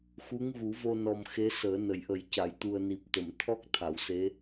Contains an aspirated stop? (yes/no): yes